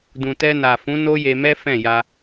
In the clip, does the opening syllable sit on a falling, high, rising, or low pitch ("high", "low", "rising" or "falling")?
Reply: low